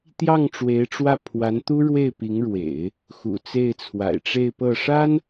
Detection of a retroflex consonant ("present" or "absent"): present